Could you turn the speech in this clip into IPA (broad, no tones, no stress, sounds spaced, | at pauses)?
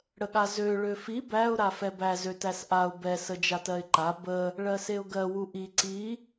ɽ ə ɠ a z ø ɭ ø f i b æ ʊ̯ ɾ a f ɛ b æ z ø t æ s ʔ a ʊ̯ b ɛ s ə d͡ʒ a t ɜ ɪ̯ ǃ a b ə | ɭ ɜ s e ʊ̯ ɡ ɜ w u ʔ i ǀ i